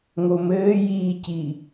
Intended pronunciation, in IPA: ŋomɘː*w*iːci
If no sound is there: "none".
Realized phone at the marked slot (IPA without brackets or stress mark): j